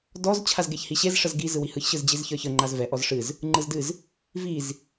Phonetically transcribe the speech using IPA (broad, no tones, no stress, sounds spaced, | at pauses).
d ɔ z t͡ɕʰ a z ɡ e ç h i ɕ e z ʂ ə z ɡ i z ɯ w i h ɯ ç ɕ ɯ z d͡ʑ i z ç ə˞ ç ə ŋ͡ǃ a z v ɛ ʔ ɔ z ʂ ɨ z | ŋ͡ǃ ɯ z d ɨ z | v i z